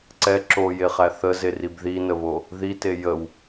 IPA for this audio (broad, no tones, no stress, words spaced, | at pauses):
ǀɛ ǁojeχæ θəzerib ðinəβo | ðite jəw